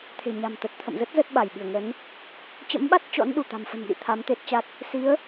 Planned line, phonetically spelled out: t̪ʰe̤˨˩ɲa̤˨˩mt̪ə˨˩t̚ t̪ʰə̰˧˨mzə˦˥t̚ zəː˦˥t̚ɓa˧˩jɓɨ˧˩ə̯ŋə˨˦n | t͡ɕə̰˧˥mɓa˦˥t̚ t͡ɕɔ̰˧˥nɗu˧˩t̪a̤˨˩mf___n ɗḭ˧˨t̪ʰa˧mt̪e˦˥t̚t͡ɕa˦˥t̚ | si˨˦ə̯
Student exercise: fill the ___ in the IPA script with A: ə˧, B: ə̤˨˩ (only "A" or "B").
B